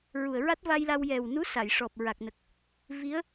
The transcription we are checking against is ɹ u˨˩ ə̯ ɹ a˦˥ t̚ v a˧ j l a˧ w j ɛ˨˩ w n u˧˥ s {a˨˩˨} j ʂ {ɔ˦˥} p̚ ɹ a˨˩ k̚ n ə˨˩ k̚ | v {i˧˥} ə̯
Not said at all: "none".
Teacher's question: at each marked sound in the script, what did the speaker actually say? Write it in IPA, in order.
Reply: a˨˩˨, ɔ˨˩, i˧˥

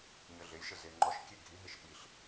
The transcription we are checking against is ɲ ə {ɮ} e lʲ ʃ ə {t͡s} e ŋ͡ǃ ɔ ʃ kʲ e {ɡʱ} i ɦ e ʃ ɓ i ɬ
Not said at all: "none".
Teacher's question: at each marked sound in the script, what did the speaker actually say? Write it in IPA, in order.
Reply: ɮ, z, ɡʱ

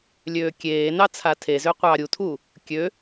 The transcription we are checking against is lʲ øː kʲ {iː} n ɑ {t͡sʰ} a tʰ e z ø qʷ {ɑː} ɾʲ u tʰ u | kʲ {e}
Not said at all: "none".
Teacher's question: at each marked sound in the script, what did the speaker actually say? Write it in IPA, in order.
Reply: eː, t͡sʰ, ɑː, ø

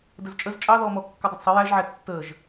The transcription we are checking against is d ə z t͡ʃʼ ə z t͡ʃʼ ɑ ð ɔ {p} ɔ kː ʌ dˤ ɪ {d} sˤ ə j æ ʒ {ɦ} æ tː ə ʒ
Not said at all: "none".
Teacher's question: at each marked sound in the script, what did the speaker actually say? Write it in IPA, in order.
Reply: m, d, ʕ

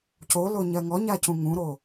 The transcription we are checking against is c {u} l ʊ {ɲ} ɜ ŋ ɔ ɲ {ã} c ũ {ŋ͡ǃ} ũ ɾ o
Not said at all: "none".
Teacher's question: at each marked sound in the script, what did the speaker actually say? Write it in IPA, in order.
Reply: o, ɲ, a, ŋ

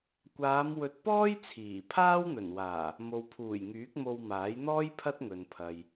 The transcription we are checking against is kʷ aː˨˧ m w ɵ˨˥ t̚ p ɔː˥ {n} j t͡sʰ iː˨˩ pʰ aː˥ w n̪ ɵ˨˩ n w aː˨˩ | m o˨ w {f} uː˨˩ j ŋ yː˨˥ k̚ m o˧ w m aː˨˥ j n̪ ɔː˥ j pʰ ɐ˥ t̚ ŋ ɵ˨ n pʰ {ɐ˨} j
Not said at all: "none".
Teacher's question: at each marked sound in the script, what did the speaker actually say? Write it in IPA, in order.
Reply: none, pʰ, ɐ˨

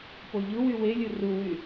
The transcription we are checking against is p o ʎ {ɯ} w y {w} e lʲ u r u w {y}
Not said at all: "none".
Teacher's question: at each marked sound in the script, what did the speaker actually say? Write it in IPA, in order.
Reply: ɯ, w, y

